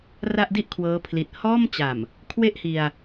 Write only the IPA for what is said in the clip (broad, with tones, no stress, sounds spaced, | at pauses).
r a˥˩ ʔ d i˥˩ ʔ kʰ w ɤː˦˥ pʰ l i˨˩ t̚ h ɔː˥˩ m t͡ɕ a˨˩ m | kʰ w e˥˩ ʔ h i˧ a̯